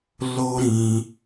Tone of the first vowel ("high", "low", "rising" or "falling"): high